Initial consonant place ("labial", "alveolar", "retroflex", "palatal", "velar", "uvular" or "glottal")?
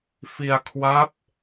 labial